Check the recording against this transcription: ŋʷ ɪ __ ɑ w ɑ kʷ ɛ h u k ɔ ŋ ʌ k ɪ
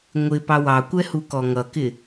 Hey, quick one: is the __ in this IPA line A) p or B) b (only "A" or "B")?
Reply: A